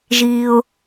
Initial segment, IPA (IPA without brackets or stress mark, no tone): ʒ